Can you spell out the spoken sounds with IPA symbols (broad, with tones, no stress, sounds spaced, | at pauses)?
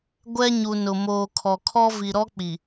ɡʷ ɛ˦ ɲ u˨ n ʊ˨ m oː˨ kʰ ɔ˨ kʰ ɔ˦ v i˨ ɾ ɔ˦ k͡p i˨